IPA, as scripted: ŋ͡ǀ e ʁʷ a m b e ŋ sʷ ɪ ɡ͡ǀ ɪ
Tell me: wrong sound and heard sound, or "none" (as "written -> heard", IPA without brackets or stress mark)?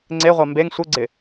none